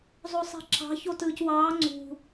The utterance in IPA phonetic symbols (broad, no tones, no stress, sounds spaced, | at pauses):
zˤ o sˤ e̤ ǁ ɑ̤ ç o t ɯː c w ɑː ŋ͡ǀ ṳ